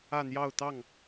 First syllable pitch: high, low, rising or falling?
falling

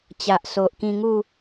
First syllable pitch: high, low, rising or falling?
low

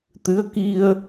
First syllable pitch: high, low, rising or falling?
rising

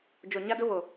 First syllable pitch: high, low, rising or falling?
low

